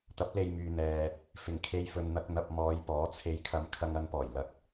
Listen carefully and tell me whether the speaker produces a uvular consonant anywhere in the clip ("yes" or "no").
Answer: no